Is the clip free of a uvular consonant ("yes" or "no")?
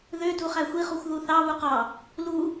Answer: no